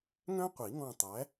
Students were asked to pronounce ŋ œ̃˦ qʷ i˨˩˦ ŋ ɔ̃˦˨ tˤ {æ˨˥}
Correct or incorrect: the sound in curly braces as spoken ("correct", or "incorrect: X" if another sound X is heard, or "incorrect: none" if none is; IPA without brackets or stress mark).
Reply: correct